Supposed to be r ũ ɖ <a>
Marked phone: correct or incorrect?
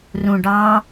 incorrect: ɑ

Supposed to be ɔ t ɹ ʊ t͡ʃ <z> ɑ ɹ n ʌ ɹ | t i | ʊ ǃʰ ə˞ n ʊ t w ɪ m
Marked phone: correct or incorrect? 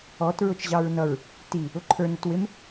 incorrect: ʑ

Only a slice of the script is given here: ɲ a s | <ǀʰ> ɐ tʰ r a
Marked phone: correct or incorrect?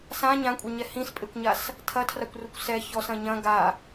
incorrect: tʰ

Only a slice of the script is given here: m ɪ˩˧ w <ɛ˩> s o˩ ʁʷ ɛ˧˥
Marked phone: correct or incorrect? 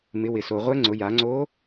incorrect: ɪ˩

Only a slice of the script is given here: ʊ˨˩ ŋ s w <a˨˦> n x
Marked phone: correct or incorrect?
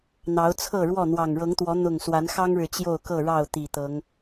correct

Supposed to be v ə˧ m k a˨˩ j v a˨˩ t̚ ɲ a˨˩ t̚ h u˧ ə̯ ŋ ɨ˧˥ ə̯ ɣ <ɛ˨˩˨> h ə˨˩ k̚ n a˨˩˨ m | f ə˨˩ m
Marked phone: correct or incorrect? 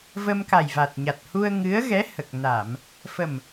incorrect: ɛ˧˥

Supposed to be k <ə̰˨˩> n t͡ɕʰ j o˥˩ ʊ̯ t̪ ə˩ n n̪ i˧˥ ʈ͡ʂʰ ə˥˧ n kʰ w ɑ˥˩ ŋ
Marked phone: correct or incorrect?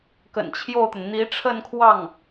correct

